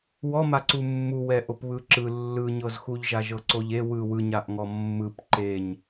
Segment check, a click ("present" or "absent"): present